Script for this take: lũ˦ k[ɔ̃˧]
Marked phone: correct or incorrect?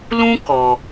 incorrect